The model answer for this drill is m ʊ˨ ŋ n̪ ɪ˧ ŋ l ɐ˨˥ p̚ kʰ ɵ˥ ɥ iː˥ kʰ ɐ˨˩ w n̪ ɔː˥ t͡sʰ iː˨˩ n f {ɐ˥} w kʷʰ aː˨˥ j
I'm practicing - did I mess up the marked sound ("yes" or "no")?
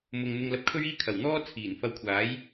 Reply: yes